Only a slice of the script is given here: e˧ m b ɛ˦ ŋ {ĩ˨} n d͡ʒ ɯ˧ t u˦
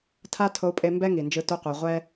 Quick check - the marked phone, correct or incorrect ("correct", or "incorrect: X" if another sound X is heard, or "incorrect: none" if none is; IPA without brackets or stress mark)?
incorrect: i˨